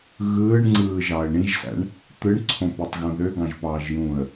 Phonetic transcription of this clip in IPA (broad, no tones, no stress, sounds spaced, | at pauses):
ɣ ɯː ɳ ŋ͡ǀ ɯː ʒ ɑ ə̯ ɳ ĩ ʒ s æ̰ ɳ | t̪ ɯ ɳ ǀʰ õ p i tˤ ɣ õ ð ø ɡ ɑ̃ ʒ p ɑː ʒ j ũː ə̯